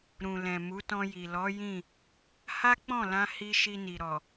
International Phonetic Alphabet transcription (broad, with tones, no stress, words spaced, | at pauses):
ɾũ˨ lɛ̃˨mu˨˦tɔ̃˧ji˨ lɔ˨˦ jĩ˦˨ | ha˦k͡pɔ̃˦˨lã˧ hi˧ ʃi˧ni˨ɾɔ˨